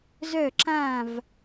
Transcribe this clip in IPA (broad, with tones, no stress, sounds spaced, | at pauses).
z œ˥˧ ǁ ã˥˧ v